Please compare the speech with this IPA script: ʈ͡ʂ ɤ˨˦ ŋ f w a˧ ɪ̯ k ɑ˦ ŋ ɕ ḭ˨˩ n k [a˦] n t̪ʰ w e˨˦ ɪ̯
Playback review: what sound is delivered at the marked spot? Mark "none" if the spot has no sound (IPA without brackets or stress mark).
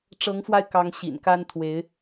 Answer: a˦